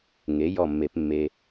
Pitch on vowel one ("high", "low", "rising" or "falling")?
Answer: rising